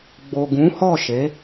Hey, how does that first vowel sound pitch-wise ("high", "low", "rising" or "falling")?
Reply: low